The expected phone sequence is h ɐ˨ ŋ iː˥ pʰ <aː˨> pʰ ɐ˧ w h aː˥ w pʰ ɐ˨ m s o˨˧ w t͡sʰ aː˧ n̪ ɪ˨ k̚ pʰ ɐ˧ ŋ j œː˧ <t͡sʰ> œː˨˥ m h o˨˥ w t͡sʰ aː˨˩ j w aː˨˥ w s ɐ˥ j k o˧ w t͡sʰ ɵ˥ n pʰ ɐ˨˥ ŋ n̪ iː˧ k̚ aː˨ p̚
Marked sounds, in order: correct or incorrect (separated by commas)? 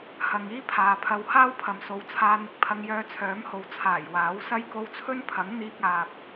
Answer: correct, correct